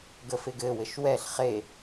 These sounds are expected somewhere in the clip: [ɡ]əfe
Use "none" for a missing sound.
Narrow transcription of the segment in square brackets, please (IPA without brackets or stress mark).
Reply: ɡ